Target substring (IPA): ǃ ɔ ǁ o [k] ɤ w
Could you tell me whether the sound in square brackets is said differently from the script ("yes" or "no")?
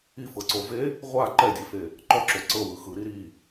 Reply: yes